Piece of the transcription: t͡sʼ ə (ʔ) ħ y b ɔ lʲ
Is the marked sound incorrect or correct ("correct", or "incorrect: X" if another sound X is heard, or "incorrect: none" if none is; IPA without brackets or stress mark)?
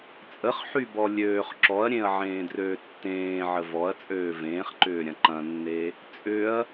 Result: incorrect: χ